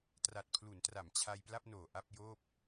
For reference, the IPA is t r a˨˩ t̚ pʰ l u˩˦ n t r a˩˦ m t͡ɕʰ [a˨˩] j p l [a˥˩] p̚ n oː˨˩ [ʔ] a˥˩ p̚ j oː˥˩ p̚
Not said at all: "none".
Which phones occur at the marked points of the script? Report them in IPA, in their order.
a˧, a˥˩, ʔ

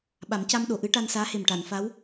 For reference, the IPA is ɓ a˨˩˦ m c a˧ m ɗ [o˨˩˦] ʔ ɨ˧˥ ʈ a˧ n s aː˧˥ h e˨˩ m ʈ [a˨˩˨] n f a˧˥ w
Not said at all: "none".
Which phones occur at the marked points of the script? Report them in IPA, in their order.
o˨˩˨, a˨˩˨

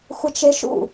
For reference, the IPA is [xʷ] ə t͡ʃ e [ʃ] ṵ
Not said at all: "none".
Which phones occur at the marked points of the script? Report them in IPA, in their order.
xʷ, ʃ

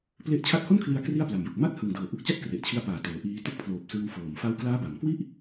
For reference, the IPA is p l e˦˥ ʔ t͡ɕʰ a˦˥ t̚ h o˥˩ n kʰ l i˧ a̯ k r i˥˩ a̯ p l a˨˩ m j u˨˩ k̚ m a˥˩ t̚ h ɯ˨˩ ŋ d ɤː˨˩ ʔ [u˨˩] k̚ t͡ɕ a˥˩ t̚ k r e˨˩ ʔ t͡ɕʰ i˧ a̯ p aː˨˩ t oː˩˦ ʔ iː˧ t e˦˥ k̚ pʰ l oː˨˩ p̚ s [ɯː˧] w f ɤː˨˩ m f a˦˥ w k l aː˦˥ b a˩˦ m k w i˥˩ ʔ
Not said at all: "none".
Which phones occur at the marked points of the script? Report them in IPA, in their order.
u˦˥, ɯː˧

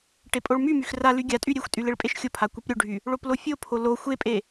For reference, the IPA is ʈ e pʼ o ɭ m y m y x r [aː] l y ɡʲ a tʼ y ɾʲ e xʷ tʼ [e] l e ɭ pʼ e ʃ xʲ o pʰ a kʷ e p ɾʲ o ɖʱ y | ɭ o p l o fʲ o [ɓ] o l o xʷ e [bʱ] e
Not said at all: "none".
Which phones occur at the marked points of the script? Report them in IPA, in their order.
a, y, pʰ, pʼ

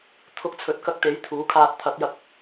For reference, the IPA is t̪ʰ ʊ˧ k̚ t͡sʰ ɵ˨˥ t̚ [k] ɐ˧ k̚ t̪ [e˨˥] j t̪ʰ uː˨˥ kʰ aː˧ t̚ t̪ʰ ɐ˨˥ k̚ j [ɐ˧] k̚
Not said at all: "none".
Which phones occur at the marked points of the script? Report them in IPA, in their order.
k, e˨˥, ɐ˧

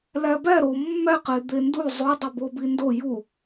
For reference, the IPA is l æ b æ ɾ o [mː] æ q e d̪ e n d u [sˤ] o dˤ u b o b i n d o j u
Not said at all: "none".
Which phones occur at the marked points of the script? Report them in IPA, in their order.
mː, zˤ

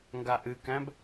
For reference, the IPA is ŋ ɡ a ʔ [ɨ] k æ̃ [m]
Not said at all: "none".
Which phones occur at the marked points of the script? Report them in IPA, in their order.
ɨ, b

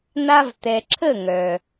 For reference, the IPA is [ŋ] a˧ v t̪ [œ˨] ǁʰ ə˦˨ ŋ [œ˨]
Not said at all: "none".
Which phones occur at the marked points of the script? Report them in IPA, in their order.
n̪, ɛ˨, œ˨

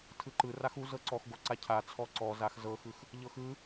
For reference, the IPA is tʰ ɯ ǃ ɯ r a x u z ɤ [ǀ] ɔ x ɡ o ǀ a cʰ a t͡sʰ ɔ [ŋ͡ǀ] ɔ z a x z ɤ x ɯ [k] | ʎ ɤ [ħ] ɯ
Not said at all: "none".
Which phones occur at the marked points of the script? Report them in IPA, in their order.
ǀ, ǀ, x, x

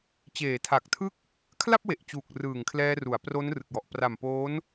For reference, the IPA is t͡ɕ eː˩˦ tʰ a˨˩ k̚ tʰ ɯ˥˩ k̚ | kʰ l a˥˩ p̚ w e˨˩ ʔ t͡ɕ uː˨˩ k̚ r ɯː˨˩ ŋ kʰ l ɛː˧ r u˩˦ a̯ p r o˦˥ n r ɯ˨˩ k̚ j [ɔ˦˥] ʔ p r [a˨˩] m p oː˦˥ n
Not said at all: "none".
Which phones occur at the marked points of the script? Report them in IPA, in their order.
ɔ˨˩, a˨˩

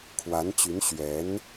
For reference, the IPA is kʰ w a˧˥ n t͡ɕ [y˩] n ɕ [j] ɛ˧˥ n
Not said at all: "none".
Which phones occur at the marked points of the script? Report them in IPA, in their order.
y˧˥, ɥ

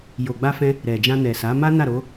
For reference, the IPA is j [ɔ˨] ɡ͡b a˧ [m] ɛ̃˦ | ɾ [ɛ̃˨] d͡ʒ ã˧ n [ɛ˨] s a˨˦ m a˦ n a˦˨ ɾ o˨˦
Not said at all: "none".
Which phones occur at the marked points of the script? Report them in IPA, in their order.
o˨, f, ɛ˨, ɛ˨

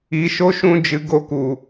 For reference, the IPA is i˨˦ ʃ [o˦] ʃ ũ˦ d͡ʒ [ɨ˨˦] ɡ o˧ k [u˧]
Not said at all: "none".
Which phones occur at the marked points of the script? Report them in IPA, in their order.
o˦, ɨ˨˦, u˨

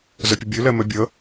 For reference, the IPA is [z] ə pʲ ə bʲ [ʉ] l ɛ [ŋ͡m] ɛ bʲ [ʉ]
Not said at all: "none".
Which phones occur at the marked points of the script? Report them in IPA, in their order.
z, ʉ, m, ə

